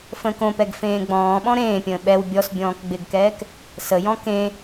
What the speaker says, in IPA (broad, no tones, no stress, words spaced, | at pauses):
fə̃ːkõpɛɡ fẽːɡ͡bɔ̃ːɓɔ̃ ɾẽːpʲə̃ː ɓɛw bʲɔsbʲɔ̃ːk ɡ͡bɪɡkɛːk | səjɔ̃ kẽ